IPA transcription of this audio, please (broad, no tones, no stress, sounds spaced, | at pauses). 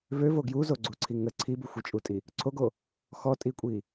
v ø v o ɡ j u z o ɡ͡ǀ u ǀʰ i ŋ ə ǀʰ i b u xʷ i t͡ʃʼ u tʼ i | ǀʰ o ɡ o | x ɔ tʼ i kʷʼ i